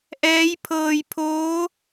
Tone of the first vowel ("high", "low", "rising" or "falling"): rising